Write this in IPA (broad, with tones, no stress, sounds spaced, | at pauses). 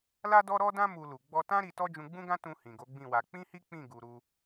l a˦ d ɔ˦ ɾ ɔ˦ d ã˦ m u˧ l u˨ ɡ͡b ɔ˧ t ã˦ ɾ i˧ t ɔ˦ d͡ʒ ũ˧ ɡ͡b ũ˦ ɡ ã˦ t ũ˧ h ĩ˨ ɡ o˨˦ ɡ͡b ĩ˦˨ w a˧ k͡p ĩ˦ h i˦ k͡p ĩ˦˨ ɡ u˨ ɾ u˧